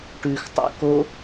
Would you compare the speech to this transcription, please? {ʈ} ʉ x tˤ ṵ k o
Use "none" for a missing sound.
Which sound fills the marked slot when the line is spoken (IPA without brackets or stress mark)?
ʈ